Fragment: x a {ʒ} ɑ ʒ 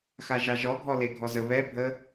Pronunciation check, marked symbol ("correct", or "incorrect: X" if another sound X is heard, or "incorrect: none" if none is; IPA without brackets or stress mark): correct